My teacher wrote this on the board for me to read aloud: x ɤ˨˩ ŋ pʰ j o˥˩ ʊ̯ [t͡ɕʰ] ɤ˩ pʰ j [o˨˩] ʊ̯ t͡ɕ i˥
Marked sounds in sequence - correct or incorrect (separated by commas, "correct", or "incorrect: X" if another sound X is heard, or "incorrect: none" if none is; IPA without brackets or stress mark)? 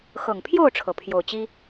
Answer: incorrect: ʈ͡ʂʰ, correct